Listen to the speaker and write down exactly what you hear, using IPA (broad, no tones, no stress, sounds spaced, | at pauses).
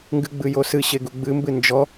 ŋ ɡ ɨ ɡ͡b ɨ j o s ɨ ɕ e ɡ u ɡ͡b ɨ m b ɨ n d͡ʒ ɔ